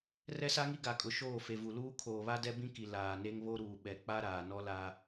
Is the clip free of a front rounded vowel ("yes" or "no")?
yes